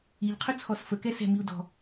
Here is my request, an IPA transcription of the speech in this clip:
i ʎ qʰ ɵ t͡sʰ ɔ s f ə k ɛ s ɛ̤ m i u̯ d ɔ̤

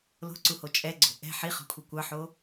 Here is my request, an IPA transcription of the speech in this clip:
l o̤ ǀ u h o t͡ʃʼ ɛ ɡ͡ǀ o̤ ʔ ɛ̤ ħ i χ ɔ̤ kʷʰ i kʷ ɑ ħ o

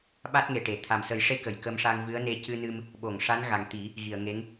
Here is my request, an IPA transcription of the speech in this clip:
ɓ a˦˥ t̚ ŋ e˨˩ ʈ e˨˩˨ t̪ʰ a˨˩ m s ə˨˩˦ j ʂ e˧˥ k ə˨˩˨ j k ə˧ m ʂ a˧ ŋ v ɨ˧˥ ə̯ n e˧ c ɨ˧ n ɨ˧ m | ɓ o˨˩˨ ŋ ʂ a˧˥ n ɣ a˨˩ ŋ t̪ i˨˩˦ | ɣ i˨˩˨ ə̯ ŋ e˧˥ ŋ

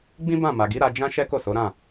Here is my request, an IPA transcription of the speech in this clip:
ɡ͡b ĩ˦ b ã˦˨ m a˨ ɡ i˨˦ ɾ a˧ d͡ʒ ã˦ ʃ ɛ˦ k o˦˨ s o˨˦ ɾ ã˦˨

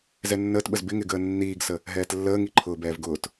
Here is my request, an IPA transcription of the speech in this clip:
z ɛ nː əː t ɓ ə z b ɪ ŋ ɪ ɡ əː nː iː ɡ s ə | ɦ ɛː t lː əː ŋ i ǃʰ ʊː b ɛː v ɡ ʊː t

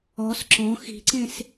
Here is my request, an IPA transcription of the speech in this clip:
ɔ s ǁ ɔ̃ x i̤ ǀ ẽ s

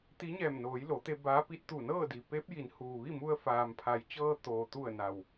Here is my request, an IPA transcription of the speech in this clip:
t̪ i˧˥ ɲ ɛː˧˩ m n oː˩˧ j l o˩˧ t̪ e˧ b aː˧˥ p i˧˥ t̚ t̪ u˧˩ n ɤː˥˨ d i˩ p eː˧˥ p̚ j i˩˧ n h uː˩ ʋ i˥˨ m u˧ ə̯ f aː˩ m pʰ a˩˧ j t͡ɕ ɤː˧ t̪ oː˩ t̪ u˧˩ ə̯ n a˩ w

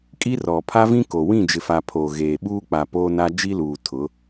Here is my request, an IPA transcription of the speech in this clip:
kʼ i˦ r ɔ˨ pʰ a˦ v ĩ˦ k o˨ w ĩ˦˨ d͡ʒ ɪ˨ f a˨ pʰ o˨ ɣ eː˨ ɓ uː˦ k͡p a˨ p oː˦ n a˦ d͡ʒ i˦ l uː˨ tʰ ʊ˨˦

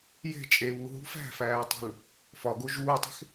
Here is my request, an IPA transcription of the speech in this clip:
j e̤ t͡ʃʼ e β u ɦ ṳ f æ̤ f æː tˤ ṳ l | f ɒ ɡ o ʒ uː tˤ e̤ x

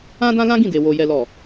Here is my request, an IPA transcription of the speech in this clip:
ã˦ d ã˦ l ã˦ ɡ ĩ˦˨ d e˨ w o˨ j ɛ˨ l ɔ˨

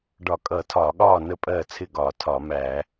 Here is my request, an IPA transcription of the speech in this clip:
ɖ ɒ˧˩˧ kʼ ʌː˧˩˧ tʰ ɒː˧˩˧ ɠ ɒː˥˨ n ə˥˨ pʼ ɜː˥˨ t͡sʰ ɪ˥˨ ɡ ɒː˧˩˧ tʰ ɒː˧˩˧ m æ˧˩˧

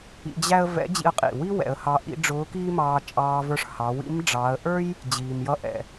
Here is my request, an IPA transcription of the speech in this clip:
ḭ˧ d͡ʑ æ˥ ə̯ v ɛ̰˧˥ d͡ʑ ḭ˧ ə̯ qʼ ḭ˩ w i˥ w ɛ̰˩˧ ə̯ h ɑ˧ ʔ ḭ˧˥ ɖ͡ʐ ʊː˧˥ k iː˥ m ɑː˧ t͡ʃʼ ɑː˧ v ə˞˧ ʂ h ɑ˩˧ w ḭ˧˥ m ɖ͡ʐ ɑː˩˧ ə̯ ʔ ə˞˥ j | d͡ʑ iː˩ m j ʌ˧ ʔ ɛ̰˩

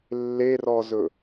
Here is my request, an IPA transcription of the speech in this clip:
lː e r ɔ z ɵ

